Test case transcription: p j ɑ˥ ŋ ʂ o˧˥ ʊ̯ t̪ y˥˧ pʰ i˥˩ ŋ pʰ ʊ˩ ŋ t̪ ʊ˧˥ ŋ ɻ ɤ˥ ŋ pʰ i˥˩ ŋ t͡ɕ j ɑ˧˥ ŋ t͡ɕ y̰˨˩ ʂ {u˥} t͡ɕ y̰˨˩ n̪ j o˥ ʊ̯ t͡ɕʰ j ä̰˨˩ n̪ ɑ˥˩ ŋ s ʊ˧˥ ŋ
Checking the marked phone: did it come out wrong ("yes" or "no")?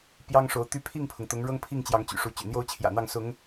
yes